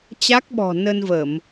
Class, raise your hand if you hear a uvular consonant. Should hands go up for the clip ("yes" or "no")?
no